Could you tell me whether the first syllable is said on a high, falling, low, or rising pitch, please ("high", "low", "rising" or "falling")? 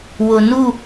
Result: low